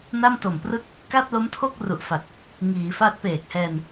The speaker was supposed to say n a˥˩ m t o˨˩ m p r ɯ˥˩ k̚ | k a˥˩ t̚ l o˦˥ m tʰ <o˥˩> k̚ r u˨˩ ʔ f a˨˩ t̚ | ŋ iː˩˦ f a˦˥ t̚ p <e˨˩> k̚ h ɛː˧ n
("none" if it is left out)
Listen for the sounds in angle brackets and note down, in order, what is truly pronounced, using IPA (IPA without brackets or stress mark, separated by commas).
o˥˩, eː˨˩